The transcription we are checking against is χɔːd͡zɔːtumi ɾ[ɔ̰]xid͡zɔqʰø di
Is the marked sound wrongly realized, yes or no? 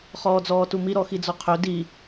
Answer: yes